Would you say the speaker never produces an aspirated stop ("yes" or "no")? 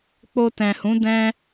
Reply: yes